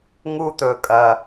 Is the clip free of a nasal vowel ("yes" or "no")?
yes